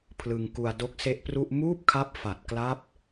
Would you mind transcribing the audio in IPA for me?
pʰ l ɯ˧ ŋ k u˧ a̯ d o˦˥ k̚ s e˦˥ ʔ p r u˥˩ ʔ m uː˥˩ p̚ kʰ a˦˥ p̚ f a˨˩ t̚ k l a˦˥ p̚

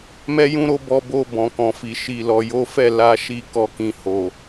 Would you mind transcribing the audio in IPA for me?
m ɛ˧ j ũ˧ ɾ o˧ b ɔ˧ b o˧ b ɔ̃˨ k ɔ̃˨ f i˨ ʃ i˨ l ɔ˨ j o˨˦ f ɛ˦˨ l a˧ ʃ i˧ k ɔ˦ k ĩ˧ h o˨

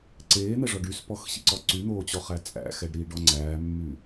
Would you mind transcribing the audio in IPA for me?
ǀ eː n̪ ɛ ʐ ɔ ɖ y s p ɔ x ɕ ḭ ǀ ɔ ǀ y n̪ oː t͡ɕ ɔ χ æ t͡sʼ æ̰ x ɛ ɖ ɾ iː ɖ ɔ ŋ͡ǀ æː mː y

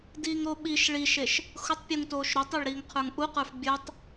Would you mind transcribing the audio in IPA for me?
d iː ŋ ɾ o ɓ i ʃ ɭ i ʃ e ʃ | x ʊ tˤ pʲ u ŋ t oː ʃ ɾ ʊ tˤ e ɭ ɾ iː ŋ qʰ ə˞ ŋ ʔ u q ə˞ f bʲ ə˞ tˤ

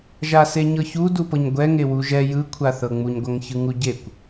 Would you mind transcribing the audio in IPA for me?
ʒ a s e ɲ ɤ ç u d u p ɤ ɲ ɡʷ ɛ ŋ e w u ʒ ɛ j ɯ kʷʰ a θ ɤ ŋ͡m u ɲ ɡʷ a ŋ ç ɯ ŋ u ɟ e kʷ

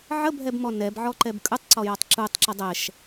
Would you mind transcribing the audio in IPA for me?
ʕ ə bʱ ɛ b m ɔ n ɛ b ʕ ɔ ǃ ɛ b kʼ ɯ tˤ ǀ ɔ j ɔ tˤ ǁ u tˤ ǁ ə dˤ ɛ ʃ

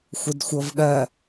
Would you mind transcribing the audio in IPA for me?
xʷ ə d xʷ ɤ v ɠ ɜ

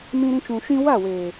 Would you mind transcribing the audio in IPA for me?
m ĩ˧ ɾ ĩ˧ t͡ʃ ũ˨ ʃ ĩ˧ w a˦˨ w eː˨

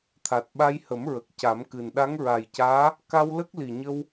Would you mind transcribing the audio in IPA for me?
t̪ʰ a˨˩ t̚ ɓ a˧ j h ə˨˩˦ m ɹ ə˨˩ k̚ c a˨˩˦ m k ɨ˨˩ n ɗ a˧˥ ŋ ɹ a˨˩ j c aː˧˥ | k a˧ w l ə˦˥ k̚ l i˨˩ ɲ ə˧ w

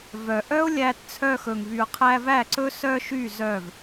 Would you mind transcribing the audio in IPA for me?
v œ˨ ʔ œ˦ ʊ̯ lʲ æ˧ t t͡sʰ œ˧ x ɵ˨ ŋ v y˨ ʊ̯ qʰ æ˧ v æ˦˨ ǀ ɵ˦ s œ˧ ʃ y˦˨ z œ˦˨ v

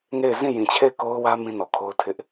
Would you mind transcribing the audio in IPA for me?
ŋ e˦˨ ɪ̯ z ĩ˦˨ j ĩ˨ t͡ɕʰ e˦˨ ɪ̯ k o˦ ʊ̯ w ä˦ m ĩ˦ n ɔ˨ kʰ o˦ ʊ̯ tʰ ɪ˦ ʔ

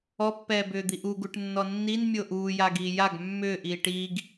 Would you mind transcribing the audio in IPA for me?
ɔ pː ɛː b ʏː d̪ i ʔ u ɡ u ʈ nː ɔ nː i n mʲ o ʔ uː j a ɡ iː j a ɡ mː ʏː ʔ iː ʈ iː ɡ

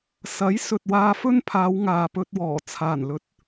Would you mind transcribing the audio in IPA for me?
s ɐ˨˥ j s ɵ˨ t̚ w aː˧ f ɵ˥ n pʰ aː˨˧ w ŋ aː˨ p ɵ˧ t̚ w ɔː˨˩ t͡sʰ aː˨˩ n l ɵ˨˥ t̚

